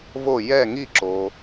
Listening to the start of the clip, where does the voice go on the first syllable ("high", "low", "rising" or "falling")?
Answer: falling